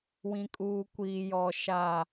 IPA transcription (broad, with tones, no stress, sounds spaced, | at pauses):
w ĩ˨ kʼ uː˨ kʷ iː˨ j ɔ˨ ʃ a˨